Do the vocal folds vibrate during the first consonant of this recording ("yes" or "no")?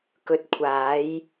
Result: no